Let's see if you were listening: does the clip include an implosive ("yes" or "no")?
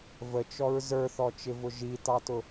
no